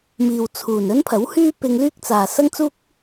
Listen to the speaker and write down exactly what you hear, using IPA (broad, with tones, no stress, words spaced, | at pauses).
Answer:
miː˨wt͡sʰuː˨˩n ɵ˥npʰɐ˨˥whyː˥ pɪ˧ŋlyː˥k̚t͡saː˨ sɐ˥ŋt͡suː˥k̚